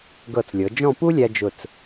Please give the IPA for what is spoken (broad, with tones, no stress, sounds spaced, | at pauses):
ɡ ɤ˧˩ t͡s lʲ ɤ˩˧ d͡ʒ ɔ̃˥˧ p u˥ lʲ æ˧ d͡ʒ ʊ˧˩ t͡s